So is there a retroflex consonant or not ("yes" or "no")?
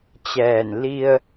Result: no